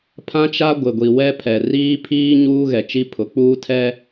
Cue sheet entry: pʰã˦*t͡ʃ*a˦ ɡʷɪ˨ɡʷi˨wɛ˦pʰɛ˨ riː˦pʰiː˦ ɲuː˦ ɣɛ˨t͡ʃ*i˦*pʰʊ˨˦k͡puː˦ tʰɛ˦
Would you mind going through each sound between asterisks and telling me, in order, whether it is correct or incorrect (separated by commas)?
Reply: correct, correct